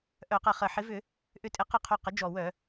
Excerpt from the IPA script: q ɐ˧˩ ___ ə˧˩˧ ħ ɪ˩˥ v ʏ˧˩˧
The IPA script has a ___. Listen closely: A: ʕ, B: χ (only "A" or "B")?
B